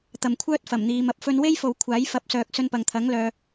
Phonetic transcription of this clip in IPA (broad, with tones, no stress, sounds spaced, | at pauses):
t̪ ɐ˨ m kʷʰ œː˥ t̚ f ɐ˨˩ m n̪ iː˨ m ɐ˨ p̚ f ɵ˧ n w e˥ j f o˨ w kʷʰ aː˨˥ j f ɐ˨˥ p̚ s œː˨ k̚ s ɵ˧ n p ɐ˨ ŋ t̪ʰ ɐ˨˥ ŋ l œː˨